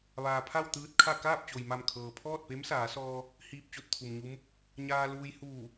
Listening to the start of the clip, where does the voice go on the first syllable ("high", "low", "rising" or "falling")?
low